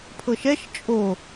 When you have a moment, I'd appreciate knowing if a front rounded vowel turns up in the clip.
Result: no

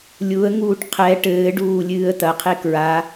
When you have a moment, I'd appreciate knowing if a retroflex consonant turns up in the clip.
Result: yes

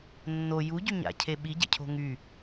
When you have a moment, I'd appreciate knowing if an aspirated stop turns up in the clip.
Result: yes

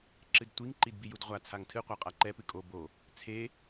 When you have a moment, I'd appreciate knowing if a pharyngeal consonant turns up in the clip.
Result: no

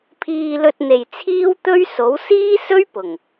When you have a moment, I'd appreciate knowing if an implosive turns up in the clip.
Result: no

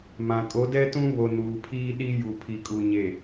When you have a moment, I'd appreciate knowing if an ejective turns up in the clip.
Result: yes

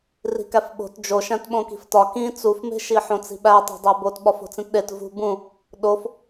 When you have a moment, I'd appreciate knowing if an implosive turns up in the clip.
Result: yes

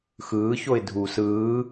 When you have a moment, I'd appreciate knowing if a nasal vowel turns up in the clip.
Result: no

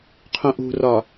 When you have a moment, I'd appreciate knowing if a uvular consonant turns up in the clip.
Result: yes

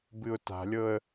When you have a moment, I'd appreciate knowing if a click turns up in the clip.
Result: no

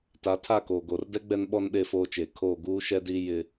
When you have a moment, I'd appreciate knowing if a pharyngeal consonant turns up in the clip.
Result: no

